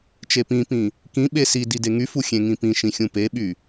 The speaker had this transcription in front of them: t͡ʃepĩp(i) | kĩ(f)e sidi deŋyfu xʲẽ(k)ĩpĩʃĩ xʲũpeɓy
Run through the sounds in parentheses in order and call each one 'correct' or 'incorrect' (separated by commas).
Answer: incorrect, incorrect, incorrect